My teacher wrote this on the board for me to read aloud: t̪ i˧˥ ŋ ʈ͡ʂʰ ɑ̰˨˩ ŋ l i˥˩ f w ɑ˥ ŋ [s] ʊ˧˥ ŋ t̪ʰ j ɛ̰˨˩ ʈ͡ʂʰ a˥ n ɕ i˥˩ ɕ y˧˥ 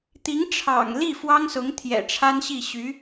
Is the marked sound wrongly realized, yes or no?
no